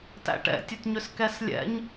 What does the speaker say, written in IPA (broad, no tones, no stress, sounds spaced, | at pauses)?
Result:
t æ̰ ʈ ɛ̰ tʲ ɵ t ɲ ʏ s k ɛ s lʲ ɛ̰ ɲ